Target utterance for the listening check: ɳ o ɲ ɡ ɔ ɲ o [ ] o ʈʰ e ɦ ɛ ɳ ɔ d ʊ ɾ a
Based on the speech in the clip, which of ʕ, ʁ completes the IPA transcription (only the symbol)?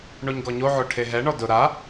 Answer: ʕ